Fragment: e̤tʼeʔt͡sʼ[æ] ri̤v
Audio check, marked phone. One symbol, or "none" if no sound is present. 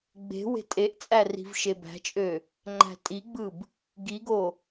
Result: æ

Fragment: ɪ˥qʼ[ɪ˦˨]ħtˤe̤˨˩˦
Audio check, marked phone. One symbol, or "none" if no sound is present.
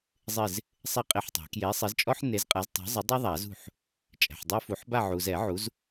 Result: ɪ˦˨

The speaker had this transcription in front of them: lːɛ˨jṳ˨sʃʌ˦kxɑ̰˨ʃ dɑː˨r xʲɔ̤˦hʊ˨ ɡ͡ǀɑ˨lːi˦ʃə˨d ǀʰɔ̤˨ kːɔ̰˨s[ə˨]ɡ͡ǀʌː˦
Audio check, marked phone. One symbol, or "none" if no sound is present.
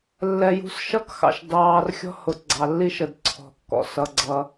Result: ʌ˨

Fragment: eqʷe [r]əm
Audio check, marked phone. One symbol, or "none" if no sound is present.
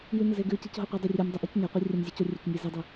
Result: rʲ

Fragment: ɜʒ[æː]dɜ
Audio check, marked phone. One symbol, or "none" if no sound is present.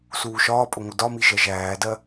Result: æː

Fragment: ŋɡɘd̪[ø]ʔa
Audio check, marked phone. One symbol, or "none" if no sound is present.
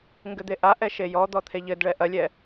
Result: e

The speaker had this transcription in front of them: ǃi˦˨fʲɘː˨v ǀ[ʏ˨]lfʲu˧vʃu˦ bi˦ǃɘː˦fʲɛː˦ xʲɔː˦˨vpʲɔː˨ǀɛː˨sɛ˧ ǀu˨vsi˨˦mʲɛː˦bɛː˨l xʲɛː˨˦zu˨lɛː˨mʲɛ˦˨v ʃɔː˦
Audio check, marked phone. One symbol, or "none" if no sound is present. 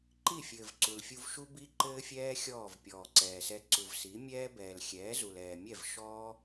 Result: u˨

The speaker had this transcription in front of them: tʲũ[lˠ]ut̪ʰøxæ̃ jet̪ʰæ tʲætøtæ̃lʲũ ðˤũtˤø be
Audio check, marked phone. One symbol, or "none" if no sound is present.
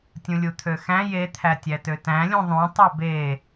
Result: lʲ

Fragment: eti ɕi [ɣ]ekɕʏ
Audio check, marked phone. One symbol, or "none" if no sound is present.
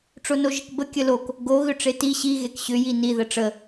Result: ɣ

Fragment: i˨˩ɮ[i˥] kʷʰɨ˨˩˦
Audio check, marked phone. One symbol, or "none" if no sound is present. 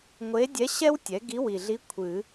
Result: i˧˥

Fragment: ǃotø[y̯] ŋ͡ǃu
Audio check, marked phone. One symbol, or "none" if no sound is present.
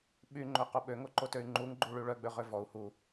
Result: y̯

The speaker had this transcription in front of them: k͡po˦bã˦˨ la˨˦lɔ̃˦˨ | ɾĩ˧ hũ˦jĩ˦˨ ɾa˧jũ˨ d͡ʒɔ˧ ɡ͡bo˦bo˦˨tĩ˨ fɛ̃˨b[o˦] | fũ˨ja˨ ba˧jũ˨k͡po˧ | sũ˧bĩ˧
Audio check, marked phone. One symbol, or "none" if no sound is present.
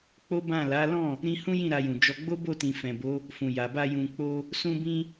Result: o˨˦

